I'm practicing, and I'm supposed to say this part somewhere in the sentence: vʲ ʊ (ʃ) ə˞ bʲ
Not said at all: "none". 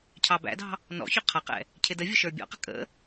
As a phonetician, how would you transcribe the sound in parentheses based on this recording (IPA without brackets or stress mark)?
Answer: ʃ